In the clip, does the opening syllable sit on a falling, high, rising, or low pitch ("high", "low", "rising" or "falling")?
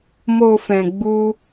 low